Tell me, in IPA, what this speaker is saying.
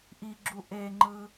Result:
ʔ i ɡ͡ǁ u ʔ e ŋ͡ǃ ɯ

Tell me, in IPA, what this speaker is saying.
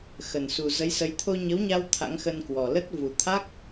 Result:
x ə˨˩ n s u˨˩ z ə˨˦ j s ə˨˦ j t̪ʰ o˧ ɲ ə˨˦ w ɲ a˧ w t̪ʰ a̰˧˥ ŋ x ə˧ n k w ɔ˨˩ l ə˦˥ t̚ v u˨˩ t̪ʰ a˦˥ k̚

